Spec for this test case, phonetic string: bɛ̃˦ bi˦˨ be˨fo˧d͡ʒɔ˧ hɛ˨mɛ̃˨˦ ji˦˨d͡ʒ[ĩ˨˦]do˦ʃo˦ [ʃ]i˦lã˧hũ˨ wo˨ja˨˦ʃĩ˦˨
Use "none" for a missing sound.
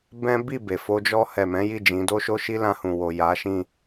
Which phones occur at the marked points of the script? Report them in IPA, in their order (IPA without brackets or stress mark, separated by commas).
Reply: ĩ˨˦, ʃ